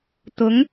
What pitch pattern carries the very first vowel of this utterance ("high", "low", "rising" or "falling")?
rising